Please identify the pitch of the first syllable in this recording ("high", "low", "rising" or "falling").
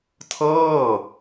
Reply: falling